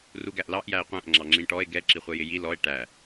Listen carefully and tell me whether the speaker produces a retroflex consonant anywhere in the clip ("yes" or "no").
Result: yes